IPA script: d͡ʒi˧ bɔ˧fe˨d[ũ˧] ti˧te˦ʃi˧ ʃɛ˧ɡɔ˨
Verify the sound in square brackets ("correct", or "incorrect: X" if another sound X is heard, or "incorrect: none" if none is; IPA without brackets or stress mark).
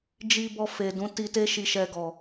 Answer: incorrect: ũ˨˦